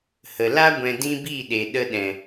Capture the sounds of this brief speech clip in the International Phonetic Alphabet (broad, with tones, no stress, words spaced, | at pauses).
hə˨la˦ ɡʷɛ̃˧dĩ˦biː˦˨ɗe˨ ɗə˧ɗɛ̃˨